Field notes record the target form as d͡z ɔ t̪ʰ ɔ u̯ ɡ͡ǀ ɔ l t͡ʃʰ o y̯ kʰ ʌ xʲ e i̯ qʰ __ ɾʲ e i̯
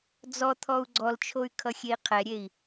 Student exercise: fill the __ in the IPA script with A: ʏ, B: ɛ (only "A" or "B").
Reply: B